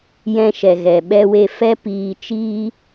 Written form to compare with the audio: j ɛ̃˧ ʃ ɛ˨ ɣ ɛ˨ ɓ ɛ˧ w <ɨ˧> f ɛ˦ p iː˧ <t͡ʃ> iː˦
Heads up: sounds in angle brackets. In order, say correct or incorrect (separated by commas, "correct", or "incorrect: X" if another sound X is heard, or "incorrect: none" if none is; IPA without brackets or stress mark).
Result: incorrect: e˧, correct